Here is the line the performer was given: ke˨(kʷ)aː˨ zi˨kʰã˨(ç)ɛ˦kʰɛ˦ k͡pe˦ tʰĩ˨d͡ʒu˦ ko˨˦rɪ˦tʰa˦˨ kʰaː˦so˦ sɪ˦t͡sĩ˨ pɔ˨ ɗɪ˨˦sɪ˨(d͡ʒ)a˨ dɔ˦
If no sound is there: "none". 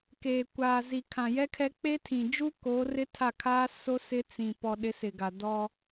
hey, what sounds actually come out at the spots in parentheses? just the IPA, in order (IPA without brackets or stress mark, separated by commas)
kʷ, j, ɡ